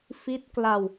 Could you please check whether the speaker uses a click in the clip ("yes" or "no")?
no